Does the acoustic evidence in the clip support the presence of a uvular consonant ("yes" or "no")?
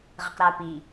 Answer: yes